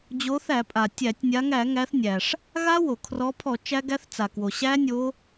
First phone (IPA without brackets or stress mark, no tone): d͡ʑ